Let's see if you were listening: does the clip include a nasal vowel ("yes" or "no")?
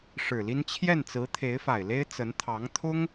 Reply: no